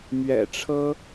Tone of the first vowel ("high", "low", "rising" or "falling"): low